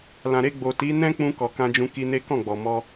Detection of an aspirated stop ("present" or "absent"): absent